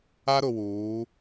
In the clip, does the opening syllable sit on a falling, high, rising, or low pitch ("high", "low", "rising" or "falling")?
high